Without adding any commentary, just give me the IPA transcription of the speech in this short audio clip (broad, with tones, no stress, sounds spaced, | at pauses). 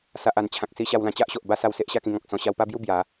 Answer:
s a˨ ʔ a˨˩ n t͡ɕʰ ã˨ k̚ s i˧ ɕ a˧ w l ã˧ t͡ɕ a˦ ʔ ɕ o˨ ʔ b a˥˧ s a˧ w s e˦ ʔ ɕ a˥˧ k ĩ˧ ŋ ɔ̃˨ k̚ s ɔ̃˧ ɕ a˧ w p a˥˧ b j u˥˧ b j a˨˦